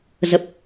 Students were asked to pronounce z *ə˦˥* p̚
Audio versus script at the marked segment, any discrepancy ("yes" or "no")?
yes